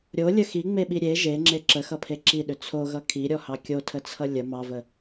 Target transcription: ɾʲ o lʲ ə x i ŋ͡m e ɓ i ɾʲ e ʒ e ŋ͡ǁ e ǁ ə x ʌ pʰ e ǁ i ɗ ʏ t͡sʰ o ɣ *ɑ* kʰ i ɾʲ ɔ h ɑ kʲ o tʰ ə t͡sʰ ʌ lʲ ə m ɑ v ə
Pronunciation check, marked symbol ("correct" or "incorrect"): incorrect